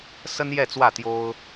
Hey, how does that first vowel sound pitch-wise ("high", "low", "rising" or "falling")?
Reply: high